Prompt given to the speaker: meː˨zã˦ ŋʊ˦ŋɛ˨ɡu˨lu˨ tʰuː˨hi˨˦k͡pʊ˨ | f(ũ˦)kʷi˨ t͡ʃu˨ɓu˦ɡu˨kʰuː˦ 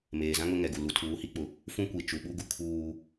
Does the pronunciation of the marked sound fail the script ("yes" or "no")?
no